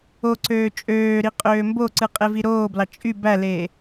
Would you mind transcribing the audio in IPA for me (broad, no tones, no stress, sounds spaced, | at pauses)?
o ǀ øː t͡ʃʼ øː ɾ i qʼ øː m b o ǀ ɯ qʼ e v i ɾ oː b l ɑ t͡ʃʼ y b æ l eː